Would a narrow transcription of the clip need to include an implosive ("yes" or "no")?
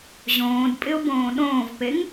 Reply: yes